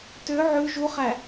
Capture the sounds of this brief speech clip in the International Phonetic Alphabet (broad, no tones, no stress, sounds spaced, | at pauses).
t ø ʕ ʉ ʒ u χ æ